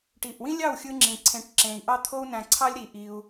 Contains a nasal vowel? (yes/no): yes